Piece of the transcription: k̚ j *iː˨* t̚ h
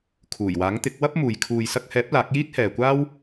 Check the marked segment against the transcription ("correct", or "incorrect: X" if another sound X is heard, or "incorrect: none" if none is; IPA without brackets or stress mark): incorrect: iː˥